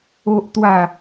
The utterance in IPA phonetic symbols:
o˦ʔt̪wa˥˧

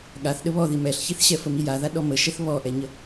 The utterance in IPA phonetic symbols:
ɠaθ ɗəβɔði mɛɬçiθɕɛ fəmijaða ɗɔməʃɛθ βɔʔɛɲə

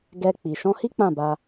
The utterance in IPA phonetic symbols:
ɡɛ˧k͡pi˨ ʃɔ̃˧hi˦ k͡pã˦˨ba˧

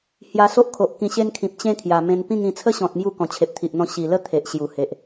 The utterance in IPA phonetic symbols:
hja˧so˦ʔkʰo˨ʔ kĩ˧ɕe˦nkʰĩ˨p̚ t͡ɕẽ˦kʰja˨˩ mẽ˧npĩ˥˧ŋĩ˧ t͡sʰə˦ɕɔ̃˨t̚ mju˥˧ kɔ̃˨˩t͡ɕʰe˨p̚t̪ʰi˨ʔn̪ɔ̃˧ ɕi˨˩lə˦ t̪ʰe˨ʔɕju˨˩he˨ʔ

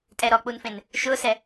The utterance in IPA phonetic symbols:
tʼɛɾɔk͡punfẽn | ʃʊsɛ

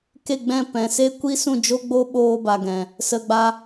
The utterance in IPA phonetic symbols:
ke˦˨ɡ͡bɛ̃˦˨ pɛ̃˨se˦ kʷi˦sũ˦˨d͡ʒo˦ ɡ͡bo˦ɓoː˧ba˨ɡɛ̃˨ | sə˧ɡ͡ba˦

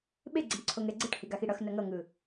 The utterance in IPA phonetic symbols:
ɓeɡ͡ǀeɳ ǀʰoŋɛɡ͡ǀɯʈhi ɡaxiɽʌx nʌŋʌŋɯ

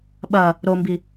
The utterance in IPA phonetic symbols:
ɓɐ | ɾombi

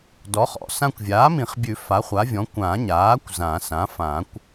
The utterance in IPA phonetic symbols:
dɔ˩˥χɔ̰˩˥ sã˧kʷvʲaː˩˥mĩ˨˩˦χbʲʉ˨˩˦ fa˩˥χʷa˩˥vʲɔ̃˩˥ kʷã˨˩˦ɲaː˩˥kʷ zã˨˩˦sã˩˥ fã˨˩˦kʷ

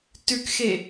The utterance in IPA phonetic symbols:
tʉkxe

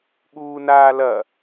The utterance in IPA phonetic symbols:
ɠuːnaːlɐ

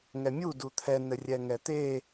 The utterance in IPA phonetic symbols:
ŋɛmʲu dut̪ʰɛ nɘrʲɛŋɛt̪e

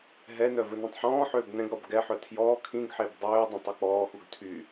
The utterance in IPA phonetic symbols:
ɦɛnœ vɵnɛ̃tˤħɔ̃ːħøːb nɛ̃ɡɾɔb ɡɛħœ tʰjɔː kʰĩɡħeb dˤøːdˤɛ̃tˤ uk͡pɔːxuɡ tʰy

